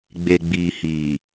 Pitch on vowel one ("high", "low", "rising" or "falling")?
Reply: low